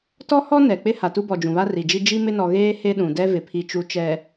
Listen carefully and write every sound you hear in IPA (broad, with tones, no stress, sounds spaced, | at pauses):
t ɔ˦ h ɔ˦ n ɛ˨ k͡p ɪ˦ h a˨ t u˦ b ɔ˨ d͡ʒ ũ˨ β a˦ r i˨ d͡ʒ i˦ d͡ʒ i˦ m ɪ˦ n ɔ˨ ɣ eː˦ h e˦ ɗ ũ˨ d ɛ˦ v ɪ˨ pʰ i˨ t͡ʃ u˨ t͡ʃ ɛ˨